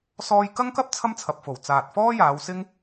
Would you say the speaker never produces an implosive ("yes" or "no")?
yes